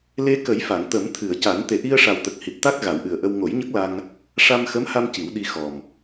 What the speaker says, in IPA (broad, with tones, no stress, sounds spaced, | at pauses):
l e˧ k ə˨˩˦ j f a˨˩˨ ŋ t̪ ə˨˩˦ m t̪ʰ ɨ˨˩˨ ə̯ c a˨˩˦ n t̪ e˨˩ ʔ i˧ ə̯ ʂ a˨˩ w t̪ ə˨˩ k̚ h i˨˩ t̚ t̪ a˦˥ k̚ ɣ a˨˩˦ w ʔ ɨ˨˩ ə̯ ʔ ə˧ w ŋ o˨˩˦ j ɲ ə˦˥ k̚ l a˧ ŋ | ʂ a˧ m x ə˧˥ m h a˧ m c i˨˩˦ w ɗ i˧ x ɔ˨˩ m